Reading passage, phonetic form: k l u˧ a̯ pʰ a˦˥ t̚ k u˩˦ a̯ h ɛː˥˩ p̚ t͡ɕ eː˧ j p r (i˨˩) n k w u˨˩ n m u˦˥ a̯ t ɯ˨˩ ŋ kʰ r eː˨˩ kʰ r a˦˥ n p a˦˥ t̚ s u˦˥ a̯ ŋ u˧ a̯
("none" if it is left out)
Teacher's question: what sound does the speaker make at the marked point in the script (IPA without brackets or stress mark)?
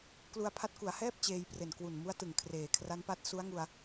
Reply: e˨˩